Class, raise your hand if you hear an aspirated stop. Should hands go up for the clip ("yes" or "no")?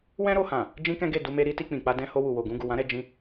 no